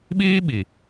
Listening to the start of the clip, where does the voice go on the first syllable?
high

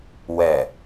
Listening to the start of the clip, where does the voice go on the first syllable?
low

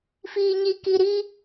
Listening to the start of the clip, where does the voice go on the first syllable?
low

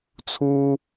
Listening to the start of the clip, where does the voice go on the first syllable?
high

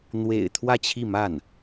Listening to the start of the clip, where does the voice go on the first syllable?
low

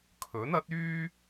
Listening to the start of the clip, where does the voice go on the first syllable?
rising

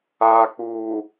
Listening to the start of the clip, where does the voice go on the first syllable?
low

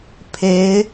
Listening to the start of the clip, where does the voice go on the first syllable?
rising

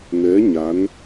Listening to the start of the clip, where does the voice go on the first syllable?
rising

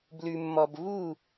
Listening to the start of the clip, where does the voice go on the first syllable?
low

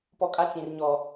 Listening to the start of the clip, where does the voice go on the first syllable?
low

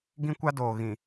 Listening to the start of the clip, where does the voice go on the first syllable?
high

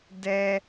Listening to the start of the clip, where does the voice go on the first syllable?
high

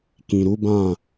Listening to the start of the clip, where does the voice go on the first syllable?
low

